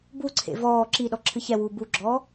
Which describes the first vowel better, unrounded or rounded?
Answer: rounded